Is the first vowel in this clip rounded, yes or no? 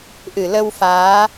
no